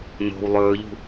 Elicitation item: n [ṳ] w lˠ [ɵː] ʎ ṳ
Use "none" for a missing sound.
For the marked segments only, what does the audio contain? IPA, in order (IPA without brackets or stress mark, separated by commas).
o̤, ɵː